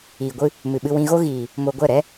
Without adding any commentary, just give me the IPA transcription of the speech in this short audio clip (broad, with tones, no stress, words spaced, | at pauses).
iː˨ɡʷɨ˧ | mɨ˨ɓɨ˧wĩ˧ɣo˦ ɣiː˨ | mo˧ɡʷɛ˦˨ ɾɛ˦